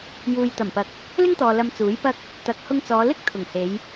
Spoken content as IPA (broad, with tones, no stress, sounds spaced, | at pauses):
j uː˨ j t̪ ɐ˨˩ m p ɐ˨ k̚ | l ɪ˥ ŋ t̪ ɔː˨ l ɐ˧ m t͡s uː˨˥ j p ɐ˥ k̚ | t̪ ɐ˨ k̚ h ʊ˧ ŋ t͡s ɔː˨˧ l ɪ˥ k̚ t̪ʰ ʊ˨˩ ŋ h e˨˧ j